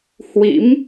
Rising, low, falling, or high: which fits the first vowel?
rising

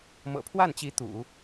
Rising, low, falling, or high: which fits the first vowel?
low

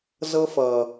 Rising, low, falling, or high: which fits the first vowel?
high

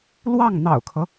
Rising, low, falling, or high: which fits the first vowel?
falling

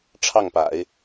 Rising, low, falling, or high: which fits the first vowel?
falling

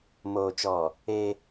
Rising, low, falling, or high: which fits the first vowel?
low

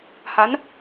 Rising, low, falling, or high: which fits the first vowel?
rising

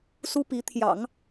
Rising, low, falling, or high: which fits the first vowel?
high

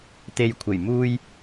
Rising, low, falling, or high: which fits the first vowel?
low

